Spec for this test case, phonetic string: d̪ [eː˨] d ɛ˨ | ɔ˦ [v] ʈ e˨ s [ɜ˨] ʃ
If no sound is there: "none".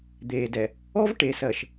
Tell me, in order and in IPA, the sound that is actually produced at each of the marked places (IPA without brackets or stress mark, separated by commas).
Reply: eː˨, v, ɜ˨